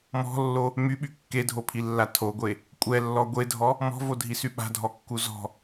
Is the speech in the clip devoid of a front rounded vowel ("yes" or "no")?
no